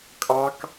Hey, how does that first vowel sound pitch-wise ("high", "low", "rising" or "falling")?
high